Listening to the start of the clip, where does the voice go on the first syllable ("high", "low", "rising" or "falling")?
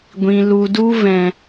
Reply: low